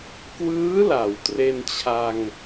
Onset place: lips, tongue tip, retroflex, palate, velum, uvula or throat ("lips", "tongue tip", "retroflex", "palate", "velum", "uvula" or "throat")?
velum